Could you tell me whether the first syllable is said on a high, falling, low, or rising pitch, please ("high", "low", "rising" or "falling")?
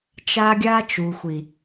high